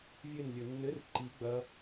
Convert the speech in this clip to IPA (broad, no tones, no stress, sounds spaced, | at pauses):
vʲ ɘ n lʲ ɵ nː ɘ r ǃ i ɡ͡b ɐ